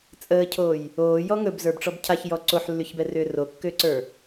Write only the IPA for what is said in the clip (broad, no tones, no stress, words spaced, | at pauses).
t͡sʼəːcʰoːj | oːjɔ ŋɵbzə˞bʈ͡ʂɔb cʰaçjɔ ǀoħlːyçbɛrʏː rokːʏːǀə˞